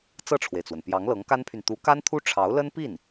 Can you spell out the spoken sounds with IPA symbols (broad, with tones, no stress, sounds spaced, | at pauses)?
t͡s ɤ˥˩ ʈ͡ʂʰ w e˩ ɪ̯ t͡s w ə˩ n p j ɑ˧˥ ŋ l ɤ˧˥ ŋ k a˥ n pʰ y˨ n t̪ u˧˥ k a˥ n t̪ʰ u˥ ʈ͡ʂʰ ɑ˧˥ ʊ̯ l ə˥ n p i˥˩ n